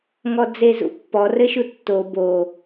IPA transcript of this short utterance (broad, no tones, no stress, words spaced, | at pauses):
ŋɔd͡zezṵpːɔ rɘʃutːo bo